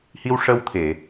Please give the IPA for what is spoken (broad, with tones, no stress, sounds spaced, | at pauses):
h i˧ w ʂ ə˧ w t̪ʰ e˨˩˨